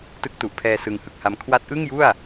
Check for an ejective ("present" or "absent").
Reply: absent